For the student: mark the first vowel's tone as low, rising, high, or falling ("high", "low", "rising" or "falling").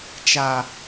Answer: low